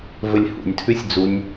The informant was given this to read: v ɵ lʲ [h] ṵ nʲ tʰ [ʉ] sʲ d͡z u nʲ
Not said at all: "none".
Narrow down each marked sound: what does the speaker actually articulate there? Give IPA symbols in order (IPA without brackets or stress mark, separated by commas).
h, ʉ